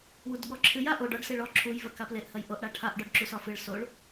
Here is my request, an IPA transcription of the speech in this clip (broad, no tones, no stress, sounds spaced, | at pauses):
w u d ɠ ɔ ǁʰ ɨ j a ʔ o ɖ ɒ ɖ s e ɭ ɔ ǁʰ u j v ɜ k a p l e ʔ h ɜ j ʔ o ʔ ɽ a ʈʰ a ʔ ɖ ɔ ɖ ǁ u s ɒ f ɨ ɭ s o ɭ